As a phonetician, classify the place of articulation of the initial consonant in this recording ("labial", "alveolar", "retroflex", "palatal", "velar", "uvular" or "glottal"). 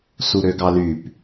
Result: alveolar